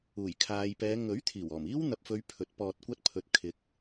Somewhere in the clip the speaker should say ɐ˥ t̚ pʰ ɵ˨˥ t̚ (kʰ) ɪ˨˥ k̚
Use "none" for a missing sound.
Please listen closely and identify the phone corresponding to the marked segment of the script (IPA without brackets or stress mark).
kʰ